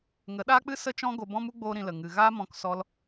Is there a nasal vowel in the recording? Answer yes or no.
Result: yes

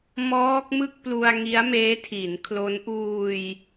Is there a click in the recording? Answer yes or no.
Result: no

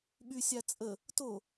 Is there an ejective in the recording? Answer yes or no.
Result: yes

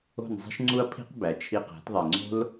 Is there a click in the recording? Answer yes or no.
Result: yes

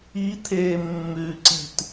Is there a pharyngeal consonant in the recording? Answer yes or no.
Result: no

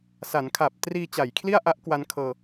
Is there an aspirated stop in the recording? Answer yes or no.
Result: yes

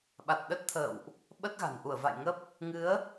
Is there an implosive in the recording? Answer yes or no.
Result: yes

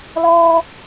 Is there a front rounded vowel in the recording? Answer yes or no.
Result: no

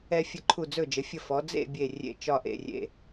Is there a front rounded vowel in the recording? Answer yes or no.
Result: no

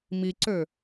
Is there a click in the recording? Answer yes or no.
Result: yes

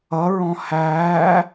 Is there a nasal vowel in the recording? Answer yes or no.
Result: yes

